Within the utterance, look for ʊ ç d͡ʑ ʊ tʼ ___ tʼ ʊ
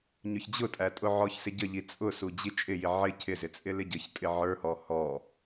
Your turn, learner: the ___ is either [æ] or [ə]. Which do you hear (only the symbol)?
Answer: æ